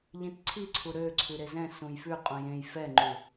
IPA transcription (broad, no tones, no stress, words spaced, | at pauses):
ʎĩtǀʰiǀʰu ɾø ǀʰʉɾezɛ̃ sũjfʉ qʼũjẽj fɛŋ͡ǃu